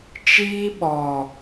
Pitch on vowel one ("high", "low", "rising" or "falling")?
high